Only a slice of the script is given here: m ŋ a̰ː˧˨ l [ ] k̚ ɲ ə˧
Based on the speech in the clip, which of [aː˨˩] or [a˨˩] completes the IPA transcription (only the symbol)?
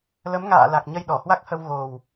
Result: a˨˩